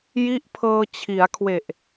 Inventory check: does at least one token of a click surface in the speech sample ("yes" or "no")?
no